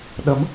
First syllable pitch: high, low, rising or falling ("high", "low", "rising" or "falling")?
rising